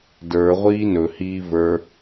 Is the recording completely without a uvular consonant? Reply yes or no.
no